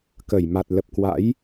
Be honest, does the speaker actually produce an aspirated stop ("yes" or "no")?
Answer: no